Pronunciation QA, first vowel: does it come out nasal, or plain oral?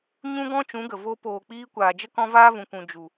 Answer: nasal